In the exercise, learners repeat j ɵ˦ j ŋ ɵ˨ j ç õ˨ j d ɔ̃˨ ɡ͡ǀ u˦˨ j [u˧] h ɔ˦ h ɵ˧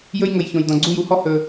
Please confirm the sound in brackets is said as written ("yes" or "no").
no